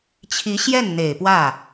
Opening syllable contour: rising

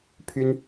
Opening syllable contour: high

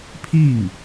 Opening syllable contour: falling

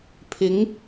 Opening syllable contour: rising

